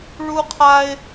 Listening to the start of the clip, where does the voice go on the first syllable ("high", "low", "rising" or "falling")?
high